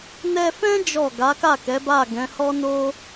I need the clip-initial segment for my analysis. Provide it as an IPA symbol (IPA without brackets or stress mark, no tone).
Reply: n